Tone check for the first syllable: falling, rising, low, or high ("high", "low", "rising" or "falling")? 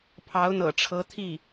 rising